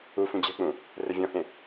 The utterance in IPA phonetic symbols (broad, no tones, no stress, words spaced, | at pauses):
u fũd͡ʑɛ̤k͡pũ | rɘvʲɔ̃hẽ